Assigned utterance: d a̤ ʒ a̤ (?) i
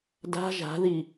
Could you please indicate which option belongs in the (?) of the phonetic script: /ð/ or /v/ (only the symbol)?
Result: ð